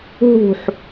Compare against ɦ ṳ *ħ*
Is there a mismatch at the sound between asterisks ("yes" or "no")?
no